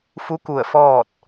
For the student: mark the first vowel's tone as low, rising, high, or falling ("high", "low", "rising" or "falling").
rising